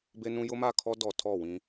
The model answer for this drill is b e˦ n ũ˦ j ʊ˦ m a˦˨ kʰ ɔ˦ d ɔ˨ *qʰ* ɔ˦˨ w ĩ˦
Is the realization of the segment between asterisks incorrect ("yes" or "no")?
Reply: yes